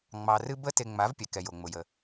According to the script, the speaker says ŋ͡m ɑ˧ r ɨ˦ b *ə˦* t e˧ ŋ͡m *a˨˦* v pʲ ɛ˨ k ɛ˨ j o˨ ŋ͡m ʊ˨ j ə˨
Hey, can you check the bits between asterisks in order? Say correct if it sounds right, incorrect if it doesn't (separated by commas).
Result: correct, correct